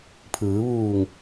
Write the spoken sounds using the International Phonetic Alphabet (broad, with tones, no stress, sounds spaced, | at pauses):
pʰ ɯː˩˧ ʋ uː˧˩ ŋ